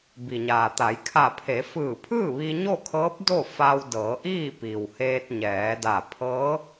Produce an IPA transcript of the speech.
b i˩ ɲ aː˩ t̪ a˩˧ j kʰ a˧˩ pʰ e˩˧ f ɯː˧˩ pʰ ɯː˥˨ ʋ i˧ ɲ o˥˨ kʰ ɤː˧˥ p̚ d o˥˨ f a˧ w d ɤː˩˧ ʔ iː˥˨ p i˩ w h eː˧ t̚ ɲ ɛː˩˧ d a˧˩ pʰ ɤː˧˥

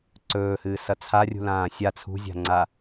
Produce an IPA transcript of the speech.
ǀ ɵː h ɨː s ɐ t͡sʰ a rʲ ṳ l ãː sʲ a t͡sʰ ṳ zʲ a̤ ŋ͡ǀ a

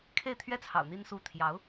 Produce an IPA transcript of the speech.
kʰ e˥˩ ɪ̯ t̪ʰ ɥ ɛ˥ t͡sʰ ɑ̰˨˩ ʊ̯ n̪ i˥˧ n s u˥˩ t̪ʰ j ɑ˧˥ ʊ̯

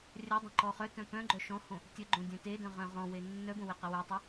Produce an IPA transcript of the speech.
rʲ œ dˤ ẽ ǃ ɔ χ œ t œ̃ p œ̃ ɡ͡ǃ œ ʃ ɔ̃ h õ | tʲ ə ɡ͡ǃ õ dʲ œ̃ t e d œ̃ ʁ œ̃ ʁ ɔ̃ w e nː œ b õ w e q ə w œ tˤ e

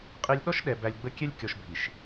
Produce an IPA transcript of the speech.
qʼ i˨ lʲ ɗ ɔ˦ ʃ ɗ ɛ˨ b æ˨ lʲ ɡ͡b ə˦ kʲ ɛ˦ lʲ kʲ ɔ˨ ʃ bʱ i˨ ʃ

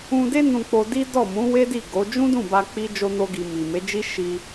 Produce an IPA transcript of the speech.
ũ˧ d e˦ n ũ˧ k͡p o˧ d i˦ d ɔ˦˨ m ũ˨˦ w e˦ d i˦˨ ɡ o˨˦ d͡ʒ ũ˦ d ũ˦˨ b a˧ k͡p i˦ d͡ʒ o˦ n o˦ ɡ i˧ m i˨ m e˨˦ d͡ʒ i˦ ʃ i˧

